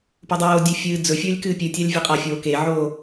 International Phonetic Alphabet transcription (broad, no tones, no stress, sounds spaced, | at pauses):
p o dˤ oː dʲ e fʲ ɨː d͡z ɵ fʲ ɵː lʲ k ɨː pʲ ɨ tʲ a lʲ vʲ ɵ qʼ ɐ fʲ oː k e ʕ oː